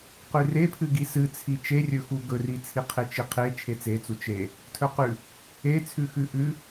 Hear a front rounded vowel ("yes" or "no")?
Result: no